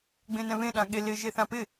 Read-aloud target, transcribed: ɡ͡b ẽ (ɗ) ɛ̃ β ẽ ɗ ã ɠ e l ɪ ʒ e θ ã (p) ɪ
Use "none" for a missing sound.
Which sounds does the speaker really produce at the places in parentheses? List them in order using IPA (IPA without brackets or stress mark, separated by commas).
n, p